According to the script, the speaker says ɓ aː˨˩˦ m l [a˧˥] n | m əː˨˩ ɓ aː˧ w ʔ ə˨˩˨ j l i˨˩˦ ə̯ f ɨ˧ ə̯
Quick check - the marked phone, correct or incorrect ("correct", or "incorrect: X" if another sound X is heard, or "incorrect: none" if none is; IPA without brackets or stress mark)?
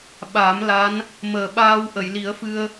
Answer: correct